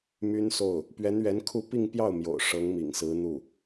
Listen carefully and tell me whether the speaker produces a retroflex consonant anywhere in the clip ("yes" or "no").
yes